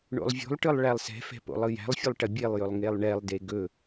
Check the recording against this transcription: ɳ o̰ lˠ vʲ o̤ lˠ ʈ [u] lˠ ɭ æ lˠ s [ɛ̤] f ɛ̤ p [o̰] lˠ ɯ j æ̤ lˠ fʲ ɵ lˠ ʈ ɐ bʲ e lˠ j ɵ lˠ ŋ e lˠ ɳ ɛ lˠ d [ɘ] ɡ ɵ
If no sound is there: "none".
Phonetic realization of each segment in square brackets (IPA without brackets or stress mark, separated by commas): ɯ, ɛ̤, o̰, e